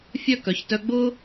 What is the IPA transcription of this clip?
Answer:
fʲ œ˥˧ k œ˩˧ ç t œ˧ ɡ͡b ʊː˥

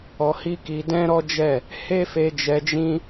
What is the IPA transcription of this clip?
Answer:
ɔ˧ h i˦ k i˧ d ɛ̃˦ ɾ ɔ˦ d͡ʒ ɛ˦˨ | h e˦ f e˧ d͡ʒ ɛ˧ d͡ʒ ĩ˦

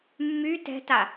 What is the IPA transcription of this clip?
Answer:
mː y t ɛ̤ t a

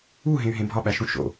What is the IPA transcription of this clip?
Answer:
u ɦ ẽ y̯ ɦ ẽ bʱ ɒ ɓ æ ʃ ũ ʃ o̰

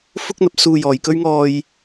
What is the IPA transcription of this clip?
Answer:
f ʊ˥ k̚ n̪ ɐ˨˥ p̚ s uː˧ j ɔː˨˧ j k ɵ˥ ɥ ŋ ɔː˥ j

